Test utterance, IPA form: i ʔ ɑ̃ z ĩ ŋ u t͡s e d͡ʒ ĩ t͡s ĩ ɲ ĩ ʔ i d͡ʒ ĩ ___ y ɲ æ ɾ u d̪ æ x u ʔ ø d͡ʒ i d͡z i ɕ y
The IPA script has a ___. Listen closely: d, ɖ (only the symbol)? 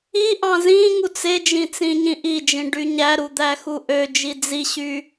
ɖ